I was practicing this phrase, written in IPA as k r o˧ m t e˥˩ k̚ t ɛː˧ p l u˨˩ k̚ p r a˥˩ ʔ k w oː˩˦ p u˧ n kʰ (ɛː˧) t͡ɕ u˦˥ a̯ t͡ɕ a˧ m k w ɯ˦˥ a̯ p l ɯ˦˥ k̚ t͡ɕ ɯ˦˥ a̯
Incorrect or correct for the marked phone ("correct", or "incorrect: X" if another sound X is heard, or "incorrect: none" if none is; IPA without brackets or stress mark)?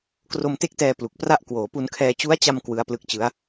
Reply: correct